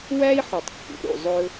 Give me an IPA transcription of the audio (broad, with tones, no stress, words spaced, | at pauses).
wæ˥i̯ħu˩tˤkːṵ˩ ɾṵ˩zˤɵ˥